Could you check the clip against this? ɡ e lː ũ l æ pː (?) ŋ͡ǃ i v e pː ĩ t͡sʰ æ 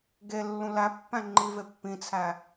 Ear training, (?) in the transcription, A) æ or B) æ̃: B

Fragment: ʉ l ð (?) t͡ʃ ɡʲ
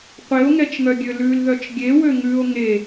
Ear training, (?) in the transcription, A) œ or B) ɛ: A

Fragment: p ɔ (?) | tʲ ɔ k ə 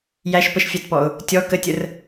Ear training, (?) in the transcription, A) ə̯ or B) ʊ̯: B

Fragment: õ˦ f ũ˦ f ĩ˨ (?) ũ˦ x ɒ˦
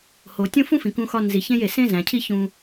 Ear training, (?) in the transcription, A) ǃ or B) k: B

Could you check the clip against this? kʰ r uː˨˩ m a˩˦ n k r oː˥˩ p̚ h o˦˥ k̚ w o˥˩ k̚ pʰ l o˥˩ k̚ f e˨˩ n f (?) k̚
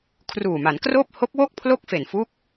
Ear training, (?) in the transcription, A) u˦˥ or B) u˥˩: A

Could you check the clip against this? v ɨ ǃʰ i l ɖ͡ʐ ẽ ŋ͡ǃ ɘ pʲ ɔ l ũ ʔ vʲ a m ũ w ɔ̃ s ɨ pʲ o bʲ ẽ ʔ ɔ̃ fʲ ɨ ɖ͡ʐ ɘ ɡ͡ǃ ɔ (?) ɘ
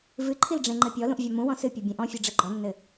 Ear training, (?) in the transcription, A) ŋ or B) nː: B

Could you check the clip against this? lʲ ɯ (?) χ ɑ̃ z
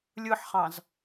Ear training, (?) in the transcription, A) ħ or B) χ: A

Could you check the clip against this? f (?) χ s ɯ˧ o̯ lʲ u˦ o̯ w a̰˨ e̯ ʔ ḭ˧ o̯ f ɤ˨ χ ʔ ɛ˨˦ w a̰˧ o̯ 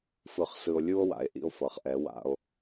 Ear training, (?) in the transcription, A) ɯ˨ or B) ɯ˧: B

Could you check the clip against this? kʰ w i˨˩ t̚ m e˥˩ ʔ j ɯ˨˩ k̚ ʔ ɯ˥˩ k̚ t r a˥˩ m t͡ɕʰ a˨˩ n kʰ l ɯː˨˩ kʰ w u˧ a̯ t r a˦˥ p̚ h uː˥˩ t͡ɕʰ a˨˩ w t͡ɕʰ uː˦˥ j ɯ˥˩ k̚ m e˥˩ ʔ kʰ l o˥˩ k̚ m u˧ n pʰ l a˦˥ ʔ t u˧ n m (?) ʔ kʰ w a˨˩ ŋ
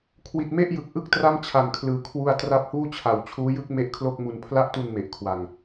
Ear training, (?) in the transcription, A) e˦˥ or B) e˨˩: B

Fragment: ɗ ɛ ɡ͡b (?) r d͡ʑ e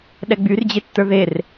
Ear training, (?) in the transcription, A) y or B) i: A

